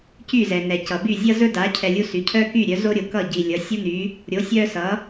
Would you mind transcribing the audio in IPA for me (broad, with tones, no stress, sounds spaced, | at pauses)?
c y˥˩ z ɛ˩ n ɛ˩ c ʌ˩ b y˥˩ zʲ ʌ˥ z ɵ˥ d a˩˥ cʰ ɛ˧ lʲ u˥ s y˩˥ cʰ œ˥ k y˥˩ ɾʲ œ˩˥ z o˥ ɾʲ o˩ k ʌ˥˩ ɟ i˩ lʲ ʌ˩˥ sʲ u˥ n y˩˥ | ɾʲ o˩˥ sʲ œ˥ s ʌ˩˥